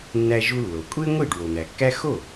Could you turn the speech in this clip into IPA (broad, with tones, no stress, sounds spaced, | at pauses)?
nː æ˧ ʒ u˧ lː o˩ kʷʼ e˥ ŋʷ i˥˩ ɖ w o˩ n̪ æ˩ kː æ˥ x o˥˩